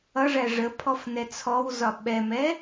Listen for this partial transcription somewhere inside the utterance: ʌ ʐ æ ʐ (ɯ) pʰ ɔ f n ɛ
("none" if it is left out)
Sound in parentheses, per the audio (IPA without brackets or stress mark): ə